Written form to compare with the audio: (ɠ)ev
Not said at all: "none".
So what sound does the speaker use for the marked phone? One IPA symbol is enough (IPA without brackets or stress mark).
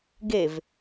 ɡ